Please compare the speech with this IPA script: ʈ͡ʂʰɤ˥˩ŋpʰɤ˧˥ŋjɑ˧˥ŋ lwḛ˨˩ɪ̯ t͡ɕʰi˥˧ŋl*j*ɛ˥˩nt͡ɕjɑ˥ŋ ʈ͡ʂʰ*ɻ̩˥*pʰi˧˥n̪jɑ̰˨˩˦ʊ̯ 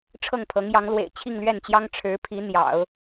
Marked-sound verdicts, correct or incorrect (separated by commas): incorrect, incorrect